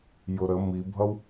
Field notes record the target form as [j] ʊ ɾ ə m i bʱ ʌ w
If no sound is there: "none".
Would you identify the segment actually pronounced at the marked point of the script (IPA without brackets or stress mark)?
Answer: j